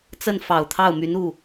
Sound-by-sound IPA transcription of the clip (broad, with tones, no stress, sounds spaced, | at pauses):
t͡s ə˥˩ n f ɑ˨˩ ʊ̯ t̪ʰ ɑ˥˩ ʊ̯ m y˧˥ n u˥˩